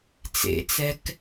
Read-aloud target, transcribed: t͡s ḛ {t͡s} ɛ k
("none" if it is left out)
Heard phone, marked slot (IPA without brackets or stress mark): t͡s